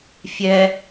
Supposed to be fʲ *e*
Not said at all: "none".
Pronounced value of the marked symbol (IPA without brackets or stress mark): ɛ